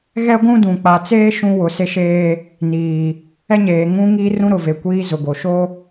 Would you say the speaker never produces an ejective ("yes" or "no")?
yes